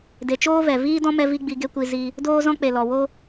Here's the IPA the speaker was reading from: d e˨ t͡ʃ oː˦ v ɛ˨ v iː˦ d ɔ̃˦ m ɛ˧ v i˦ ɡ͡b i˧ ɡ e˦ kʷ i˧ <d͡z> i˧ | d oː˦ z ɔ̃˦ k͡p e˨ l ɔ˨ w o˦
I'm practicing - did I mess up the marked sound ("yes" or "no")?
yes